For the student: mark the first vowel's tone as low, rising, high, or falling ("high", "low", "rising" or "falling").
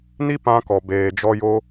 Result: high